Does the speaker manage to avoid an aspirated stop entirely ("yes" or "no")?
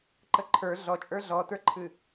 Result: no